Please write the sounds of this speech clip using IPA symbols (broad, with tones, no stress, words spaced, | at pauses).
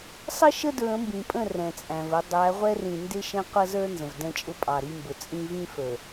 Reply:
sˤə˦ ʃə˦dɹə̃˨˦mbĩ˨pʼə̃˦˨ rɛ̃˨t͡sʼæ̃˨və˨˦ dˤæ˨˦ʁʷɛ˦rĩ˨ ndɪ˦ ʃɛ̃˦qʷʌ˦zə˞˦ nzə̃˨vdɛ̃˦t͡ʃʼʊ˦ pʼɑ˨ɾi˦mbʊ˨ t͡sʼĩ˦ vĩ˦fə˞˨